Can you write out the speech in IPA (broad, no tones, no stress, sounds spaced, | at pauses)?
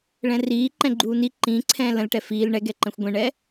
ɭ ɛ̃ r iː ǃ ɛ̃ ɡ͡ǃ uː n i ǃ ĩ ǀʰ ɛ̃ː l ə̃ l ʈ ɛ f iː l ɳ ɛ ɡ ɛ ǃ ɛ̃ xʷ ɡʷ ɛ̃ ɳ ɛ